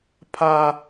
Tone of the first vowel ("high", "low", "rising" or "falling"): high